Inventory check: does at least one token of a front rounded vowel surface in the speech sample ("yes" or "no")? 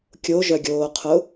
yes